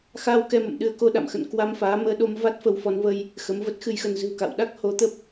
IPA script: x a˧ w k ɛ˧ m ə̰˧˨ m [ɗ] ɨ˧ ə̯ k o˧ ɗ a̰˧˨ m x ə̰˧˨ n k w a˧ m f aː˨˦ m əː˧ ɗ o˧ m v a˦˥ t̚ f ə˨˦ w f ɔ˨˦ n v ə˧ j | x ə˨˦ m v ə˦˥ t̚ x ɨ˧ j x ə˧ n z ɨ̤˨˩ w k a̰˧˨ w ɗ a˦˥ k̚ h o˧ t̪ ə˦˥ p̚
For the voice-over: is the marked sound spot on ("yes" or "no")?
yes